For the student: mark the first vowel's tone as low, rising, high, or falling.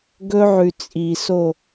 high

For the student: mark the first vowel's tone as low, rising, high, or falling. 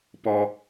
high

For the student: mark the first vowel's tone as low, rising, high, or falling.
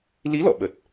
rising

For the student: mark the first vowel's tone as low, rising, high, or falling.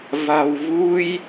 low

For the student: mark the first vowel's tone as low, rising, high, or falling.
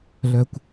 low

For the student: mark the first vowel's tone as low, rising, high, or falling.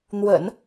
low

